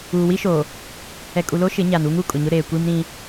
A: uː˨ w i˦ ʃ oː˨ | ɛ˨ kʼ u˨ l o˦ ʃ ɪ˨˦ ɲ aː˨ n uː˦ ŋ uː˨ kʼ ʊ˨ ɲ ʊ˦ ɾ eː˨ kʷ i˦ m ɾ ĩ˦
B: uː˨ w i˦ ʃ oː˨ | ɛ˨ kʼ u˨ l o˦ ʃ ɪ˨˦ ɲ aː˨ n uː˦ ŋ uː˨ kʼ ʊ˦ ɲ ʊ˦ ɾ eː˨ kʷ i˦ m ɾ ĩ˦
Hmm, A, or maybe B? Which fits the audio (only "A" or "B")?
A